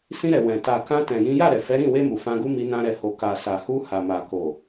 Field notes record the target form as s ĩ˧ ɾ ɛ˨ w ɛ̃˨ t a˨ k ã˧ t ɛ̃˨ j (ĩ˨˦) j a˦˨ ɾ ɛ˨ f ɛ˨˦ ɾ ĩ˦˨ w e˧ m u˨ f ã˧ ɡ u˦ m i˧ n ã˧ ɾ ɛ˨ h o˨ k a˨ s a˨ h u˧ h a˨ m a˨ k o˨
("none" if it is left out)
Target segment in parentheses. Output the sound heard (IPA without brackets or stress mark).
ĩ˨˦